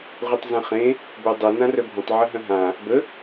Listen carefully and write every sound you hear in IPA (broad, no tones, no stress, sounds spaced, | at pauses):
ʁʷ ɯ tˤ z ə̃ χ ẽ | b œ dˤ œ n ã r œ bʱ ə̃ tˤ ʕ ə ɦ œ̃ ɦ ã | b ə